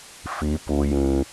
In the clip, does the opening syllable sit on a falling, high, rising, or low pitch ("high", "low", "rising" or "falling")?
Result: rising